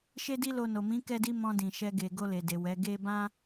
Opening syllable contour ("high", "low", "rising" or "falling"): high